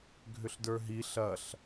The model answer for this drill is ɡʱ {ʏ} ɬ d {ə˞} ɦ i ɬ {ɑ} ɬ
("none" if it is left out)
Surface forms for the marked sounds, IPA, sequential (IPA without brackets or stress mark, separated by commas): ʏ, ə˞, ɐ